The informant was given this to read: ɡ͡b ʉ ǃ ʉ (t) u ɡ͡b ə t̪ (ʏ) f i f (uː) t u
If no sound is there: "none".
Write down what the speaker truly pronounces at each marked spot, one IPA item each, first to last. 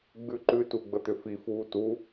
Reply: t, ʏ, uː

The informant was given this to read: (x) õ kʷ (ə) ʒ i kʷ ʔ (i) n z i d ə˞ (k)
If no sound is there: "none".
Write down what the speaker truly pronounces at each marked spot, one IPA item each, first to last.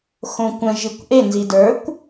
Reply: x, ə̃, e, kʷ

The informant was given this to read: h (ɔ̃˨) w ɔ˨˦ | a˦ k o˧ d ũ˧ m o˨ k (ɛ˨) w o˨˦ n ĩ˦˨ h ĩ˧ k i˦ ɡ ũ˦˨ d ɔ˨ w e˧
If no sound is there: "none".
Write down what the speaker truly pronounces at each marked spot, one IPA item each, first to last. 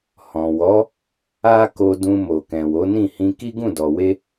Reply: ɔ̃˨, ɛ̃˨

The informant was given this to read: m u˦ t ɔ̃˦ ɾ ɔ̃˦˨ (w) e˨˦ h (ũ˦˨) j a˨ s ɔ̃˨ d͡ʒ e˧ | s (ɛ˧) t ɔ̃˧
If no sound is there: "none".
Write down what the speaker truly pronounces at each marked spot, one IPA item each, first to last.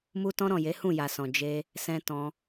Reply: j, ũ˦˨, ɛ̃˧

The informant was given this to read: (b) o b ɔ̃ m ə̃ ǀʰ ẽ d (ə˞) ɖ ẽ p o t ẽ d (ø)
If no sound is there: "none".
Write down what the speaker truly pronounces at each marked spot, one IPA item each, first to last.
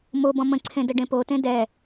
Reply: m, ə, ɛ

